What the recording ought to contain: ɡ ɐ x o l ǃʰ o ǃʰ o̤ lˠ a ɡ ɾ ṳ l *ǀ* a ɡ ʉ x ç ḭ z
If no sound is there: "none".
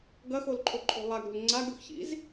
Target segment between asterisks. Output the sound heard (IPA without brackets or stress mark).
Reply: ŋ͡ǀ